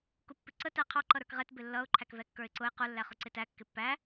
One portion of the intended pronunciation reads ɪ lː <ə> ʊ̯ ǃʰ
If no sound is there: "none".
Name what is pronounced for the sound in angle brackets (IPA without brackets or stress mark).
ʌ